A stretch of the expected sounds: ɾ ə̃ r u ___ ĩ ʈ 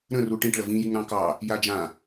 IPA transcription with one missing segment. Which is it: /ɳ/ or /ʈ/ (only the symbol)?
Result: ʈ